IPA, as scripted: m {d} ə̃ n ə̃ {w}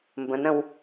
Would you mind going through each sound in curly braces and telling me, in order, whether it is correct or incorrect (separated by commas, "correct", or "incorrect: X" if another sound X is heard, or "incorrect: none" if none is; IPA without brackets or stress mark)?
incorrect: b, correct